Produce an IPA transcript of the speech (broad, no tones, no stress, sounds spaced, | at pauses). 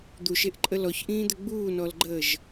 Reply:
d̪ u ʃ e ʔ ǃʼ ə l ɔ ç ʔ ĩː d̪ ɘ ɡ͡b uː n ɔ l ɡ͡ǃ əː ʒ